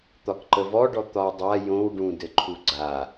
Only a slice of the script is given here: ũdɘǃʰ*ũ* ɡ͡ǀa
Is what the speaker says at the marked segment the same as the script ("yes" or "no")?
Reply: no